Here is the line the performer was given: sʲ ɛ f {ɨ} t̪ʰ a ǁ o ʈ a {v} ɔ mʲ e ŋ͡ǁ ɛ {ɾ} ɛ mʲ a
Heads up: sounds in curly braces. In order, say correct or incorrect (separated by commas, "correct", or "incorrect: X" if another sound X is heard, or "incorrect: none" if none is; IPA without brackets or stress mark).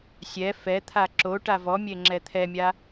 incorrect: ɛ, correct, incorrect: t̪ʰ